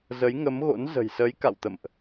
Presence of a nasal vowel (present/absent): absent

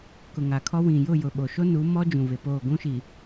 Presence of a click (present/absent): absent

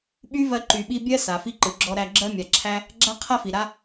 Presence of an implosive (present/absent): present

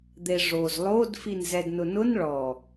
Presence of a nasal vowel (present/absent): absent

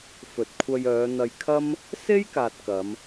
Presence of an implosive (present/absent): absent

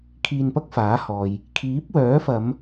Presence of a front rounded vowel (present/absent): present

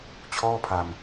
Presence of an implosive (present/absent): absent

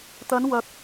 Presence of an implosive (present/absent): absent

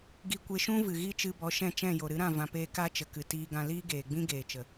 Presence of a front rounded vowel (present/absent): absent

